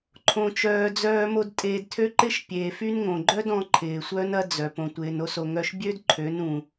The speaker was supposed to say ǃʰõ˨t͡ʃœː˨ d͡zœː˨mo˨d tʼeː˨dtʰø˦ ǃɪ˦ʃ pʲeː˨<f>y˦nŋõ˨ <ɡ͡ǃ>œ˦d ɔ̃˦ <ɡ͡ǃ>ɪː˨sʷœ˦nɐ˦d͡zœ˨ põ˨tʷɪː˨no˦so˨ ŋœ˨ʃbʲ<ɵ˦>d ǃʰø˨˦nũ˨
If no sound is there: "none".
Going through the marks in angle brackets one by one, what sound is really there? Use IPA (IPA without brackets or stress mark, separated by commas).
f, ɡ͡ǃ, ǃʰ, ø˦